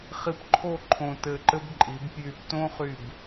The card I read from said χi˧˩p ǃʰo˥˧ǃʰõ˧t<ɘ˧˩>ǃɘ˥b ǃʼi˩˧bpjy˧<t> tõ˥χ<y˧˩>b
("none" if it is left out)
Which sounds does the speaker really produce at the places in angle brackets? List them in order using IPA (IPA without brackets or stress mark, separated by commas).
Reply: ɘ˧˩, p, y˧˩